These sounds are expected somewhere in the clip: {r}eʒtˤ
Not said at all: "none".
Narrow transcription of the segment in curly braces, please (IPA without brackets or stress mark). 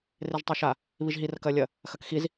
r